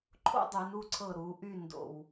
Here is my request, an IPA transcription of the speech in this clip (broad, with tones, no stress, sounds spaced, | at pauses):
ǃʰ o̰˥ dˤ y˩˧ n u˥˧ ǀʰ ɤ˧˩ ɾ u˩˧ ʔ y˥˧ n d o̰˧˩ w